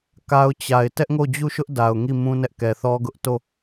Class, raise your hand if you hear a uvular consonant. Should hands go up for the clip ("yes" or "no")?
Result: no